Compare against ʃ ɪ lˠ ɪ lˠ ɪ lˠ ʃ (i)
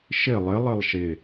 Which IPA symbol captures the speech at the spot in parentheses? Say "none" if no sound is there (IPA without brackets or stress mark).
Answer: ɪ